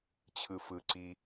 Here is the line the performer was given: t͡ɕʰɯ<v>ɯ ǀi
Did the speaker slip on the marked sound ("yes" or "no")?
yes